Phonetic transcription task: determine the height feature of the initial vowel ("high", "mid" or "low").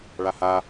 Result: low